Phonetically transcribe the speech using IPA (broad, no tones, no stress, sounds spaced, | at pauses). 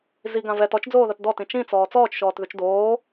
z i ɡ ã v ɛ t ɔ t͡ʃ d͡z oː ð ɐ t d ɔ t ĩ t͡ʃ ĩ t͡s ɔː t͡s ɔː t͡ʃ ʃ ɔː t ð ʉ t͡ʃ d oː